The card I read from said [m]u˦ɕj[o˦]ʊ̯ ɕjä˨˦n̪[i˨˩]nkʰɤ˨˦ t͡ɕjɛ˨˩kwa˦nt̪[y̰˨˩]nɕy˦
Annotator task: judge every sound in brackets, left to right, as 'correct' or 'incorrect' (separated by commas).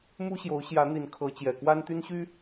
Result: correct, incorrect, correct, incorrect